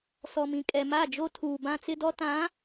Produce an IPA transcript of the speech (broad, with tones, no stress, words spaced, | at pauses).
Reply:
sɔ˨mĩ˨ kʼɛ˨ma˦˨d͡ʒo˦ tʰuː˨bã˦t͡sɪ˦dɔ˦ tã˨˦